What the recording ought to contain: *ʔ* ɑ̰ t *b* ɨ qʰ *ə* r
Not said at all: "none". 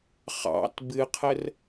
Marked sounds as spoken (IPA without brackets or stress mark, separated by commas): χ, b, ə